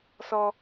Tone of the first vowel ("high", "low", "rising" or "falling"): high